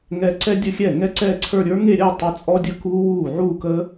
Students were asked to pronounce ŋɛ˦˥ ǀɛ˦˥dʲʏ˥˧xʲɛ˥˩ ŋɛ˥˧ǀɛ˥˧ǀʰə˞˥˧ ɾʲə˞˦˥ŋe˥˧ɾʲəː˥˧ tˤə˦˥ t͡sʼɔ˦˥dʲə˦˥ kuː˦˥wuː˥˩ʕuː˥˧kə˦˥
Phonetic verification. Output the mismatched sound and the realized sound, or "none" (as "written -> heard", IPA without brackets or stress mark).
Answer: ʏ˥˧ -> ə˥˧